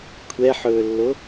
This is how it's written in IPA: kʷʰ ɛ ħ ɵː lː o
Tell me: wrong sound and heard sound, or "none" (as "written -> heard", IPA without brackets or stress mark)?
none